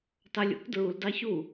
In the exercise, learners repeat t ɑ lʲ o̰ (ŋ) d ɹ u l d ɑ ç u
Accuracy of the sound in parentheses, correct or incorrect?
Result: incorrect